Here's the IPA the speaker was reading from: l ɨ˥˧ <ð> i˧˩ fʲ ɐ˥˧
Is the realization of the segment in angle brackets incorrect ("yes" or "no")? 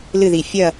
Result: no